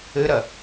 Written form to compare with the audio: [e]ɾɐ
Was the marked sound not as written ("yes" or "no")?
yes